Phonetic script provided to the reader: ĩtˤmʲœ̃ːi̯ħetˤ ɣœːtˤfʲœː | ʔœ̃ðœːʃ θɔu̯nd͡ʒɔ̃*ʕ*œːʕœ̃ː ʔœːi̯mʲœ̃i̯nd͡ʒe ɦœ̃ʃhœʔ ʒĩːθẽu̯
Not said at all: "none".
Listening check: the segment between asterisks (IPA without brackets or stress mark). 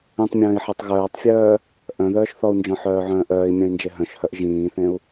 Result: ħ